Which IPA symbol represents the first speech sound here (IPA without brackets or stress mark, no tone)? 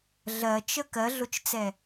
ɮ